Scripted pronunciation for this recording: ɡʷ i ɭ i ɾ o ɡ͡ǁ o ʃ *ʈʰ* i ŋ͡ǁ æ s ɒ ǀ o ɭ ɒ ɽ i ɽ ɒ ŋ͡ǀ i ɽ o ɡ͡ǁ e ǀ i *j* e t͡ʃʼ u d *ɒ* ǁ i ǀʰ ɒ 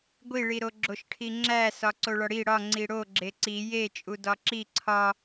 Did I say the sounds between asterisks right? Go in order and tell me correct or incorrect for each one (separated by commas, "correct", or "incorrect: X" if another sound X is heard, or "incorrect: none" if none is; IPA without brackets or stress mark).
correct, correct, correct